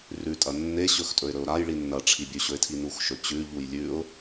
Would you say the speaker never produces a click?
yes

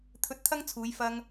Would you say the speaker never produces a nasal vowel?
yes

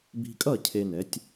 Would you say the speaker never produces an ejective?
no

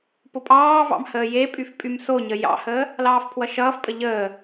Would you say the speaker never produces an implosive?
yes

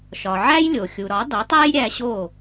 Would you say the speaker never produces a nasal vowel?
yes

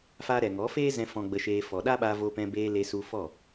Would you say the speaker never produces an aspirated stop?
yes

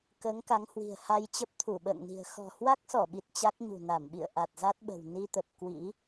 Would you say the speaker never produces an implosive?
no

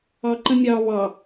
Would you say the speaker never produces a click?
no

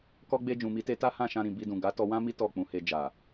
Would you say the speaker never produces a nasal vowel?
no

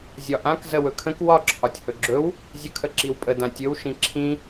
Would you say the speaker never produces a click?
no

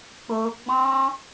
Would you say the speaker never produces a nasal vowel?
no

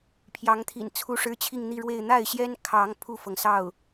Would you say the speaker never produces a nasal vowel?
yes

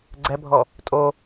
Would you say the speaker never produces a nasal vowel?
yes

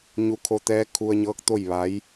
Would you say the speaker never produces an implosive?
yes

